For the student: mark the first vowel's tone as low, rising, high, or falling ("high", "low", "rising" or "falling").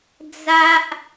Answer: high